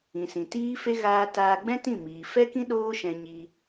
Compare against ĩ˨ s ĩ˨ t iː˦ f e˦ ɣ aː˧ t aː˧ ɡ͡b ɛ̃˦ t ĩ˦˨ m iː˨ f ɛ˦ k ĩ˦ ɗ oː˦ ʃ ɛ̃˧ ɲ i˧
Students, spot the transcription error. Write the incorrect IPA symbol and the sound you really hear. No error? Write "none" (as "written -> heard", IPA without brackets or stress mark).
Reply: none